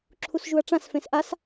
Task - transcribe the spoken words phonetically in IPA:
ǁʰ u s ʒ u ɐ̯ ʈ͡ʂ ã s f ẽ s ʔ a s

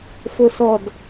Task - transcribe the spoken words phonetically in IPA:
f o s ɔ d

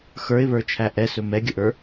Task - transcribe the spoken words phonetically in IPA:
x ə˞ ɪ̯ β ə˞ t͡ʃʰ æ ʔ ɛ s ɵ m ɛ ɡʲ ə ʔ ə˞

